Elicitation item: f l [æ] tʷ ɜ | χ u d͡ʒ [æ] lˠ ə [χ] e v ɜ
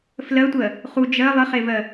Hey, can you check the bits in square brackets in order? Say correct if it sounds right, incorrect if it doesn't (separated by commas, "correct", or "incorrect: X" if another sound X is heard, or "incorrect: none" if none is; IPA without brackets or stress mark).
incorrect: ɜ, incorrect: ɜ, correct